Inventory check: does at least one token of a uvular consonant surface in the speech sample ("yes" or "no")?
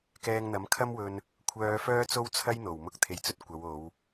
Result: no